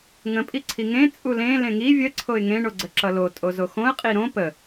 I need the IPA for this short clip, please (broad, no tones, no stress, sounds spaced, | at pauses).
ŋ ə̃ pʼ i ǀʰ i ŋ ẽ t͡sʼ u l ẽ l ẽ ŋ i vʲ ə ǀʰ o ɪ̯ ŋ ẽ ɳ o ɡ͡ǀ ə ǁ ʌ l o tʼ o z o x õ ə̯ qʼ i ɾ õ p ə